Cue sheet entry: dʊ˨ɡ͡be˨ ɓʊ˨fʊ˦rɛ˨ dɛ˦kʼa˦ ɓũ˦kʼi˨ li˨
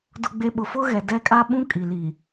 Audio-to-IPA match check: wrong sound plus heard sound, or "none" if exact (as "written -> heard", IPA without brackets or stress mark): r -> ɣ